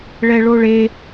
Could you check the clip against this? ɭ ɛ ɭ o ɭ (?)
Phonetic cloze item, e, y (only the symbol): e